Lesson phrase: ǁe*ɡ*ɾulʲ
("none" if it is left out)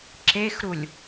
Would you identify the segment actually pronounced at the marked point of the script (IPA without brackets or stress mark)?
x